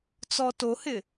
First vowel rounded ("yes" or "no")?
yes